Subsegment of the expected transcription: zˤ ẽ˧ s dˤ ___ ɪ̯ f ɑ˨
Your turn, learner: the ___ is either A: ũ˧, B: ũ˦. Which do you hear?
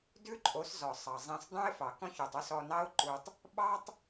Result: B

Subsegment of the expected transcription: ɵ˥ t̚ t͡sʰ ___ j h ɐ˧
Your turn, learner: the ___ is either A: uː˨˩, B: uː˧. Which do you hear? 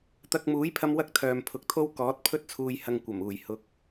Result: B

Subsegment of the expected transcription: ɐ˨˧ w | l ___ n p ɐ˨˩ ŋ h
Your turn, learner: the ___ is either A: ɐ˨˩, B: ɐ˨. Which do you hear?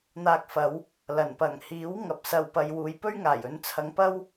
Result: A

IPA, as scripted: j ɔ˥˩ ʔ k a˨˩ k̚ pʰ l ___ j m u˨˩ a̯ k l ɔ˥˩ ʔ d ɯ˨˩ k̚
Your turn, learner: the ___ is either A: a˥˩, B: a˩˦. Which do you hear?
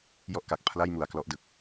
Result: A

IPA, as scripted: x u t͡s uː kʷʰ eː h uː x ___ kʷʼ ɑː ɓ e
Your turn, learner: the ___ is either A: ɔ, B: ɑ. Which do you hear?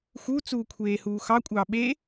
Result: B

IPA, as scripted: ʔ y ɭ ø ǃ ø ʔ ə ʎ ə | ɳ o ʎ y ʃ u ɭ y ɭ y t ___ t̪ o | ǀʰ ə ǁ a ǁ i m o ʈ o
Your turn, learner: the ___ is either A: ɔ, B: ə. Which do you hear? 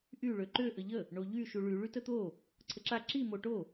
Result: B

